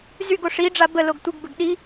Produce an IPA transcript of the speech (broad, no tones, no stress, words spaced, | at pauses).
zyɡo ʂiɖ͡ʐa bə loɡtʷɪɡbəɡ ɗi